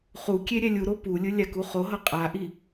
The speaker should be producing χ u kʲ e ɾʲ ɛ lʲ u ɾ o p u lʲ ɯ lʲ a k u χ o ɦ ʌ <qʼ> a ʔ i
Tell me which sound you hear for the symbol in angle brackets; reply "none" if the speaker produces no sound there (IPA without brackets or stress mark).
qʼ